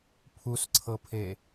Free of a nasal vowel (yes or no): yes